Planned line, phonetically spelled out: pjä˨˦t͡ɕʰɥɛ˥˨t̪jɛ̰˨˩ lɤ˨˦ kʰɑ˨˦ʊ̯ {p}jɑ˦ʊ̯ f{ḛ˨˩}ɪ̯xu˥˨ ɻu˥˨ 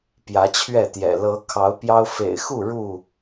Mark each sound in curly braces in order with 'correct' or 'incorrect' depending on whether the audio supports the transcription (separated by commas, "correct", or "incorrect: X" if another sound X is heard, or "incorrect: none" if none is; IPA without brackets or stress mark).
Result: correct, correct